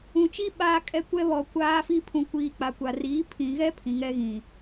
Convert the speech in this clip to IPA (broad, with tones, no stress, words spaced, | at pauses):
ũ˨t͡ʃi˦ ɓaː˦kʼɛ˦kʷɛ˦ βɔ˨ kʷaː˦fi˦ pʰũ˨kʷiː˨ k͡pa˨kʷa˨riː˨˦ pʰĩ˨ɣɛ˦ pʰĩ˨ŋɛ˦ɣĩ˨